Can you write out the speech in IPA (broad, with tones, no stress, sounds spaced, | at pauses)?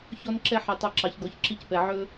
ç ɔ˦ n ǁ ɛ˦ ħ ɛ˧ tˤ ɑ˦ ǁ ɑ˧ ç ɡ ɔ˧ ç ǁ i˦ c p ɛ˧ ʕ ɵ˦